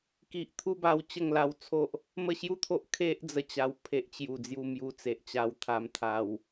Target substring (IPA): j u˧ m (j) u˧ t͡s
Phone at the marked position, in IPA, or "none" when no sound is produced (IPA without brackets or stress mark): j